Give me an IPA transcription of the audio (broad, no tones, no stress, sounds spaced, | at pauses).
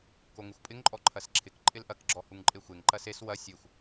k o ŋ ɪ xʷ pʼ ɪ ŋ ǃʼ ɔ ǃʰ ɐ s ǁʰ ɪ k ǃʼ ɪ l ʔ ɐ k ɡ͡ǁ ɔ h u ŋ ǃʼ e xʷ e ŋ ǃ ɐ s e s w ɐ sʲ e xʷ